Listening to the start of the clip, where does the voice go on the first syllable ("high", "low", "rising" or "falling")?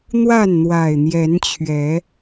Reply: falling